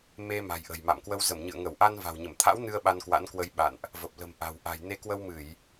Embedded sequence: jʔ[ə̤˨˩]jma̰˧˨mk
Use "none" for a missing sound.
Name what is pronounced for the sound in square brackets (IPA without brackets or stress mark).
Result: ə̤˨˩